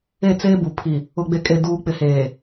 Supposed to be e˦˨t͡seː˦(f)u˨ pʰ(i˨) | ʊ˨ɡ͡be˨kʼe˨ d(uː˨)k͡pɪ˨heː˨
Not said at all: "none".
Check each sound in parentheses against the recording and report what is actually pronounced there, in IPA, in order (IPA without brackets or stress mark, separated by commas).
b, i˨, uː˨